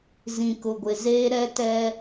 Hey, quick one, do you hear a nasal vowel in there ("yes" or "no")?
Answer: yes